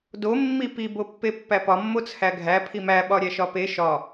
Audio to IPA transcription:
do mːipi bopːepːæpɒ mːot͡sʰæɡʱæ pʰimæ ɓɒɾʲæʃɒpe ʃɒ

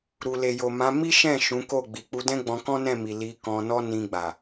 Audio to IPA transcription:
ɾu˨ le˨jo˨mã˨˦ mi˦ʃɛ̃˦˨ ʃũ˨˦ko˦˨ ɡ͡bi˨k͡pu˧dɛ̃˦ɡ͡bɔ̃˧ kɔ̃˦nɛ̃˦˨mi˨ li˧kɔ̃˧nɔ˦ nĩ˧ɡ͡ba˨

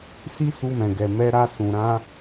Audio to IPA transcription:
si˦su˧mɛ̃˨ɡɛ˨ mɛ˧ɾa˧ sũ˨ɾã˧

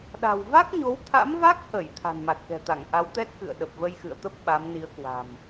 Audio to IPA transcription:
ɗa̤˨˩wva˦˥k̚ɲo˨˦wt̪ʰa̰˧˥m va˦˥k̚hə˧˩j t̪ʰa̤˨˩nma˨˩t̚kɛ̤˨˩t̪a˧˩ŋ ʔa˨˦wt̪ɛ˦˥t̚kɨ̰˧˨ə̯ ɗə˨˩p̚və˧jxɨ̰˧˨ə̯t̪ə˦˥p̚ ɓa˨˦mni˨˦ə̯kwa̤˨˩m

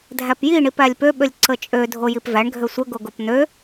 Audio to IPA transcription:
dʱæpjiɳip ælʲpøɓølʲ ǀət͡ʃʼø dʱojipvæɳ ɡʱøsʷəɡoɡop n̪ø

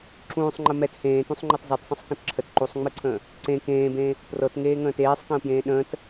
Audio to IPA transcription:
ǁũːsˤŋ͡ǃə mɛt hẽːtũsˤŋ͡ǃɤt zˤetsˤə̃sˤkə̃t ǁʰət ǃusˤŋ͡mɨǀʰə̃ː | ǀẽ kẽːbẽː | prɤtŋeːŋə̃ːt eːsˤkə̃ːpjẽː ɗə̃ːt

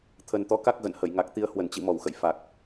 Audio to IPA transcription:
t̪ʰə˨˩nt̪ɔ˨˦ka˦˥k̚ ɣə̰˧˨nhə˧˩j ŋa˨˩k̚t̪i˧ə̯ hwə˧˩nt͡ɕḭ˧˨ mɔ˧˩wxə̰˧˨j fa˨˩k̚

